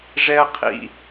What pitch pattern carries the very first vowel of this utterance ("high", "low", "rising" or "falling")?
high